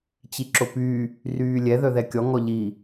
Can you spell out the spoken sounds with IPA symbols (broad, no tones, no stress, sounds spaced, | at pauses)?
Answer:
t͡ɕ i ǁ o p y | r yː lʲ ɛ ð œ ð ɛ kʲ ɔ ŋ ɔ ʎ i